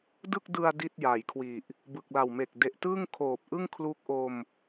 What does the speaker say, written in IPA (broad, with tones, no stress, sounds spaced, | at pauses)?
d ɯ˥˩ k̚ d ɯ˧ a̯ d i˥˩ t̚ j a˩˦ j kʰ w i˨˩ ʔ | b ɯ˨˩ k̚ l a˨˩ w m e˨˩ k̚ d e˨˩ ʔ t ɯ˥˩ ŋ kʰ oː˨˩ p̚ ʔ ɯ˥˩ ŋ kʰ l u˦˥ k̚ ʔ o˧ m